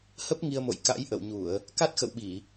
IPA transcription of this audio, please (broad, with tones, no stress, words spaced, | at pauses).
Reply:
hə˦˥p̚ ŋi˧ə̯mo̰˧˨j ka̰˧˥jʔə̰˧˨wɲu˧˩˨ə̯ | ka˦˥t̚xə̰˧˨wɓi˧˩˨